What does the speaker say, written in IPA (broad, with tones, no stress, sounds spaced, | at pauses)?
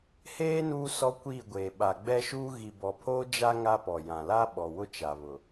h eː˦ n uː˦ s ɔ˦ kʷ iː˦˨ ɡʷ eː˨ ɓ a˨ ɡ͡b ɛ˦ ʃ uː˦ ɣ i˨ b ɔ˨ pʰ oː˦ d͡ʒ a˦ ŋ a˦ p ɔ˨ j ã˨ l a˦ ɓ ɔ˨ w ʊ˦ t͡ʃ a˨ β ʊ˨